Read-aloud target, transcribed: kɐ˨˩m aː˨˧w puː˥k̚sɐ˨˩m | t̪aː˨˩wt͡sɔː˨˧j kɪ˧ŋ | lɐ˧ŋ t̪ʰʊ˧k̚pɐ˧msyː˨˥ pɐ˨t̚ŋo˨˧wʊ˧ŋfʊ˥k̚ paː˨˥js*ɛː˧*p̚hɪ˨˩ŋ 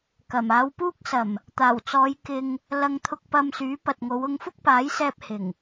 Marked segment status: correct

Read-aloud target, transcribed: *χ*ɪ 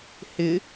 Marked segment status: incorrect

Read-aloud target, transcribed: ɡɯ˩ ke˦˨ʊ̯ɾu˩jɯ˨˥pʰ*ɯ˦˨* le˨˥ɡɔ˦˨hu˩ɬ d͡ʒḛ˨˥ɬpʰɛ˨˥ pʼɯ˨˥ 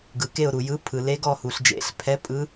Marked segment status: incorrect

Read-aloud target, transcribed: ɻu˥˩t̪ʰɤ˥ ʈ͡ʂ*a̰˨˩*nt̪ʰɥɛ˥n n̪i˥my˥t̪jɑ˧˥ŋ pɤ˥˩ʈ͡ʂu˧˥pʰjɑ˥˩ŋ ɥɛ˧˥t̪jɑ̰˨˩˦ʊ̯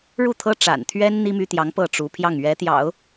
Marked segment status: correct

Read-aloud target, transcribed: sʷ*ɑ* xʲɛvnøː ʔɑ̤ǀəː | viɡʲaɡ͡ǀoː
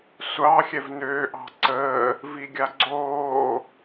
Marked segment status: correct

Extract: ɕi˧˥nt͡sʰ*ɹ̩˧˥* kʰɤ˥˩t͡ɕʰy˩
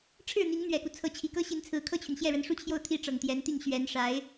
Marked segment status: correct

